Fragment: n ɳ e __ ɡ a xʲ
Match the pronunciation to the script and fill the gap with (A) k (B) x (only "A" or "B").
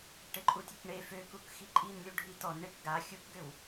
A